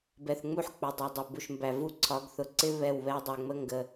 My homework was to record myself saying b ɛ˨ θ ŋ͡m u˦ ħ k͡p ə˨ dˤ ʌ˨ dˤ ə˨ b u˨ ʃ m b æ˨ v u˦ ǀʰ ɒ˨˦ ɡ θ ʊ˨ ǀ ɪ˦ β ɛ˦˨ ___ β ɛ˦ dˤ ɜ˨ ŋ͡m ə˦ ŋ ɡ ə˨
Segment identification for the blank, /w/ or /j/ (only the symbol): w